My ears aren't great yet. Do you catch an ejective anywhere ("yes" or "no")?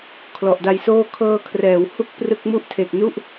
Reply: no